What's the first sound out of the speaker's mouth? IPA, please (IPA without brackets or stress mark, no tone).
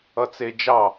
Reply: ʌ